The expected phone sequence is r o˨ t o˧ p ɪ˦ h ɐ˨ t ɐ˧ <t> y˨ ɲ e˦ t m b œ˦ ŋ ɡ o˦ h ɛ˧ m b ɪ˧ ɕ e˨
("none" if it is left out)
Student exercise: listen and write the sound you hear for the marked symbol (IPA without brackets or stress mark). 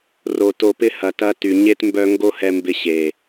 t